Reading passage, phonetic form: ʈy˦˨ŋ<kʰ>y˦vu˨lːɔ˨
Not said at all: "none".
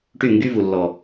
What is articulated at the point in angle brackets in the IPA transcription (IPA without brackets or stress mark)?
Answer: ɡ